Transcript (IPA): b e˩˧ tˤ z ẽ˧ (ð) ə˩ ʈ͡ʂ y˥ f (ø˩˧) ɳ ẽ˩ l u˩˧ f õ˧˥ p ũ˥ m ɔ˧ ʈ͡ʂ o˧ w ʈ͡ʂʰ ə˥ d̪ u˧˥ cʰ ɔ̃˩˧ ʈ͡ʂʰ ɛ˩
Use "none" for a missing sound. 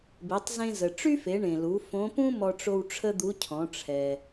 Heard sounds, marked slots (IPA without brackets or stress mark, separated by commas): z, e˩˧